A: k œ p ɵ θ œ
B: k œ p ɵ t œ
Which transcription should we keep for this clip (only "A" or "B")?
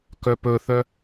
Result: A